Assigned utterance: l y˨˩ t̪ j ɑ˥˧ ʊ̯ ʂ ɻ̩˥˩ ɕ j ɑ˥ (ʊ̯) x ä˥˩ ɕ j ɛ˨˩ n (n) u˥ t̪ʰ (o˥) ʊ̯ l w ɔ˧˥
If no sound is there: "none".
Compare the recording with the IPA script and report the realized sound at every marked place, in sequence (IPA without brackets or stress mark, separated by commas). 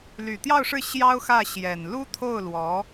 ʊ̯, l, o˥˩